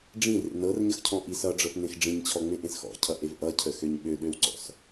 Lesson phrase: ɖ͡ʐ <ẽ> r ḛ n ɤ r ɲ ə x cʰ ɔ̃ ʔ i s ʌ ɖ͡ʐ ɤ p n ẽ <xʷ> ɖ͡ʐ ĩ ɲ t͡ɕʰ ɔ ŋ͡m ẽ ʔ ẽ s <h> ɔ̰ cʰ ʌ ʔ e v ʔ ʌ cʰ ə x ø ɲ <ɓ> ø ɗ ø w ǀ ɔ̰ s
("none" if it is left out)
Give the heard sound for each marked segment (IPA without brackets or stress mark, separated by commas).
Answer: ĩ, x, x, ɓ